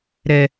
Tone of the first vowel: low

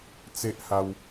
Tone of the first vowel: high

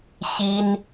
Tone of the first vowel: high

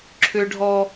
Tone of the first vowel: high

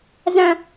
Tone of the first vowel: high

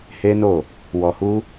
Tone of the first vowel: high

